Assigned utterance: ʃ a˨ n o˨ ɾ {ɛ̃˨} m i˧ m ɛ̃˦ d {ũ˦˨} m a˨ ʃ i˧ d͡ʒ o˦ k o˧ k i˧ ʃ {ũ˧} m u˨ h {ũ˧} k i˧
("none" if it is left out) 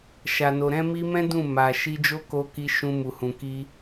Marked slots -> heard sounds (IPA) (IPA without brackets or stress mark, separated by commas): ɛ̃˧, ũ˦˨, ũ˧, ũ˨